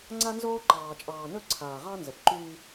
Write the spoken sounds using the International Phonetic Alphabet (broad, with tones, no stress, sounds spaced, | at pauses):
ŋ͡ǀ a˦ n z oː˦ ǃ ɑː˨ t͡ʃʼ ɑː˨ n ɵ˦˨ ǀʰ aː˨ ʁ ɑ˦ n z ə˨ p ǃ yː˦